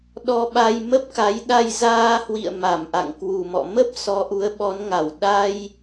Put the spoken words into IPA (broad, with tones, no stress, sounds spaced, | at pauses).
ɗ ɔ˧ ɓ a˧ j m ə˦˥ p̚ k a˨˦ j ɗ a˧ j z aː˧ h w ḭ˧˨ ə̯ m a˧˩ m ʔ a̰˧˨ ŋ k w u˨˩ m ɔ̰˧˨ m ə˦˥ p̚ s ɔ˨˦ ʔ u˨˦ ə̯ ɓ ɔ˨˦ n ŋ a˧˩ w ɗ a˧ j